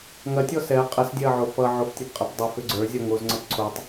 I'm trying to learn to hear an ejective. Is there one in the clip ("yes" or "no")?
yes